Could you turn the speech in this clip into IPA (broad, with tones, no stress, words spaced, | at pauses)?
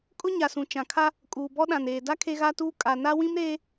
kʼʊ˦ɲa˨sũ˨ t͡ʃã˨kʰa˦ | kʼuː˨bɔ˦ɗã˨neː˨ da˦ kʰe˦ɣa˦tuː˦ kʼa˨ na˦ wĩ˦mɾeː˦